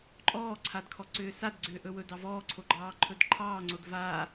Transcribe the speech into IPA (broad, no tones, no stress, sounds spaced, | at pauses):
ǃʼ ɔː ǀʰ a d kʰ ɔ ǀ ʏː s a d ɡ͡ǀ ʏː ʔ ɵ w ɵ d ɑ v ɔː ǀʰ o ɡ͡ǃ ɑː ǃʰ ɵ d ǃʰ ɑː ŋ͡ǀ o d v aː